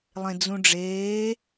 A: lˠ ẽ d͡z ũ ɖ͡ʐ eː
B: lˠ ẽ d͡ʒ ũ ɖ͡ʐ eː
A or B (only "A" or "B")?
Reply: A